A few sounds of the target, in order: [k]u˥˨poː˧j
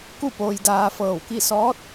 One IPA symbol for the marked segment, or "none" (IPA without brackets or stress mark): k